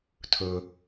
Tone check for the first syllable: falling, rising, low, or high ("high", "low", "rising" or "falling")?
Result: low